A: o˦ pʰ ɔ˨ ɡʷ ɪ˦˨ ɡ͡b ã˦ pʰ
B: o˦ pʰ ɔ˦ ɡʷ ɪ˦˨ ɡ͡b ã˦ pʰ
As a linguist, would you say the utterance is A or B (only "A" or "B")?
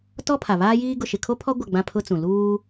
B